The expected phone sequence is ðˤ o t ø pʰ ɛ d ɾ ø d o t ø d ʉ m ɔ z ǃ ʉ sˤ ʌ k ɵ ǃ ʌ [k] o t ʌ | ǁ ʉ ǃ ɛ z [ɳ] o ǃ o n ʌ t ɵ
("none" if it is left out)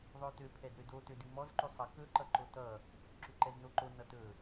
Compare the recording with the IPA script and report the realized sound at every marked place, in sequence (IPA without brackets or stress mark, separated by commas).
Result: ǃ, n